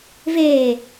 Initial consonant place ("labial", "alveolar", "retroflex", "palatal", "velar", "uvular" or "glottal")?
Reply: labial